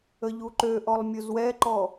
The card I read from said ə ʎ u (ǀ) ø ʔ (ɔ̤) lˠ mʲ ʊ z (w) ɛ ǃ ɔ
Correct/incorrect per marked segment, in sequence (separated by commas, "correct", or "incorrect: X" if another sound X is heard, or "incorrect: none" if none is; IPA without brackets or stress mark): incorrect: ǃ, incorrect: ɔ, correct